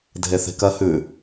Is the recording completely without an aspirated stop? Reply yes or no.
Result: yes